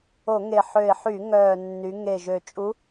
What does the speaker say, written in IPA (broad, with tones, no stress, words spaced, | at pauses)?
o˧˩˧ŋe˨˩ ħø˨˩ɪ̯ħy˧˩˧ ŋœː˨˩nːy˩˧ ŋe˨˩ ʒø˨˩t͡ʃʼu˧˥